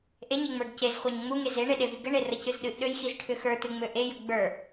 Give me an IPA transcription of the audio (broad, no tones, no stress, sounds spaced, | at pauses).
ʔ e ɲ e ŋ͡m ə˞ ɡ c e z χʷ a ɲ ŋ͡m u ŋ e z e ɳ e ɗ e v i ɡ ə ɳ e r ə c ɨ z ɗ ɨ ʔ ɗ ø j x i z ʈʰ ʏ x ə˞ t ɨ ŋ͡m ø ʔ e j ə ɡ͡b ə˞